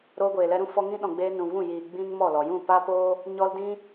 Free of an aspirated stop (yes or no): yes